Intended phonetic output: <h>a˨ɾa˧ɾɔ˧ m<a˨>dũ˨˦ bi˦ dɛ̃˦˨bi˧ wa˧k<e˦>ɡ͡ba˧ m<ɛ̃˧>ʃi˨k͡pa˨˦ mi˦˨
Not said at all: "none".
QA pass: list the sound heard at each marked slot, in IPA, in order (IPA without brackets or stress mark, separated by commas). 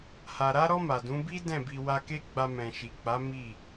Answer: h, a˨, e˦, ɛ̃˨